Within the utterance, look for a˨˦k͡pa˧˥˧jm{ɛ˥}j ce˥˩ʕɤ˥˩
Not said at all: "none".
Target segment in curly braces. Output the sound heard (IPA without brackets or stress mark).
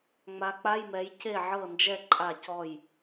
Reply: ɛ˨˦